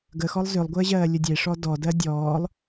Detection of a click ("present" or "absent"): absent